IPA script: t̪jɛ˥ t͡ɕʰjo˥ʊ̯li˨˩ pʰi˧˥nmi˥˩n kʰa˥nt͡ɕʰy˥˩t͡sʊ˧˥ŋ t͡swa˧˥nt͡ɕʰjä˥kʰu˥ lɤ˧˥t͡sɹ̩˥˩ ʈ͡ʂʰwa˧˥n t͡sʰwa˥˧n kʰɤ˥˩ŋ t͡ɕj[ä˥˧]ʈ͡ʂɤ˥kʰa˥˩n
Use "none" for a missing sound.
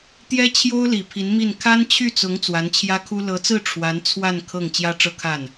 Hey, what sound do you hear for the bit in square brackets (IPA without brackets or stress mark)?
ä˥